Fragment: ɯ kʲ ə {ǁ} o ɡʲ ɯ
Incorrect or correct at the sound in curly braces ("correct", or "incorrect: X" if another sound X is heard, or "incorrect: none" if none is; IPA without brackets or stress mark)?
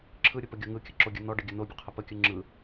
correct